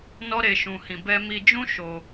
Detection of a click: absent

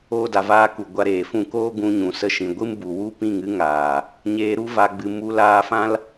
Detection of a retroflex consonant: absent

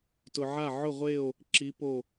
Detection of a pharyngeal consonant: present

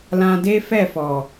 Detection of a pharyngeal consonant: absent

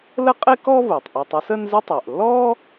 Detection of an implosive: absent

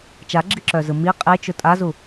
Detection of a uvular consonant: present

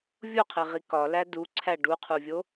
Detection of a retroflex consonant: present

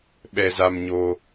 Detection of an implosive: present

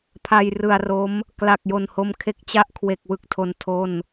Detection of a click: absent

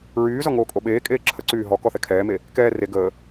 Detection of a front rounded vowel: present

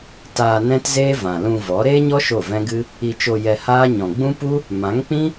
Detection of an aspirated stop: absent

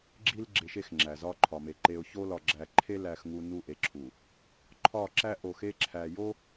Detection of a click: present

